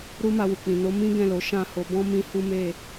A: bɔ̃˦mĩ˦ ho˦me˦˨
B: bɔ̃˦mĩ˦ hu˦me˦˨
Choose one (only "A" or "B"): B